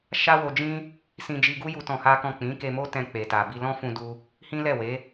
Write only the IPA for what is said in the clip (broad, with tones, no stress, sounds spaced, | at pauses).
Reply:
ʃ a˦ w o˧ d͡ʒ ĩ˦ | s ĩ˧ d͡ʒ i˧ ɡ u˦ j u˦ t ɔ̃˧ h a˦ k ɔ̃˦˨ k͡p ĩ˨˦ k e˧ m o˦ t ɛ̃˧ k͡p e˨ t a˨ b i˧ l ɔ̃˦ f ũ˧ d u˧ | h ĩ˦ l ɛ˦˨ w e˨˦